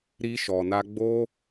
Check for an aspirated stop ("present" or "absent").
absent